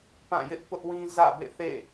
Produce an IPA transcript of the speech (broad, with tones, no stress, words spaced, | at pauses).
pã˦˨jɪ˦ʔ pʊ˦ʔwĩ˦ zä̰˦˨bḛ˦˨θḛ˦˨